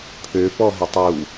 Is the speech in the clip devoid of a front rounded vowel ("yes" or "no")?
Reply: no